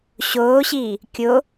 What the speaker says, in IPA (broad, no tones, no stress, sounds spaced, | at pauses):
ɕ oː ɕ iː | kʲ o